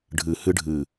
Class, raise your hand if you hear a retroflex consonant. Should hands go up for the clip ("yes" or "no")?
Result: yes